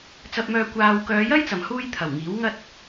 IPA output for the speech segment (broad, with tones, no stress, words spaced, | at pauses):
t͡sɐ˧p̚mœː˧ kʷaː˧w kœː˨˧jɐ˥jt͡sɐ˨˩mhuː˧j t̪ʰɐ˨˩wŋiː˨˥w ŋɐ˧t̚